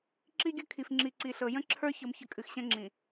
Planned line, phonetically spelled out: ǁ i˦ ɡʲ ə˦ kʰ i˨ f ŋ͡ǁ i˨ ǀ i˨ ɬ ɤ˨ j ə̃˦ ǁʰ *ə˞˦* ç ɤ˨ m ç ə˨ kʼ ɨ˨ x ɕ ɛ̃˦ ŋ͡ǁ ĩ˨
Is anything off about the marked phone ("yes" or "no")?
no